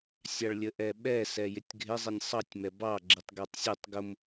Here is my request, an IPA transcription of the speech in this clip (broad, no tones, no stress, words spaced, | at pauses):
sʲɑɭlʲəʔɛɓɛ sɛjɪtʲɡʱɪ zˤinʲsˤɑtʲ mɛbɑ ɡ͡ǁitˤɡɛtˤsʲutˤ ɡʊm